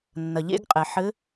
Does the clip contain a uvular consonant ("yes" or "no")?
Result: yes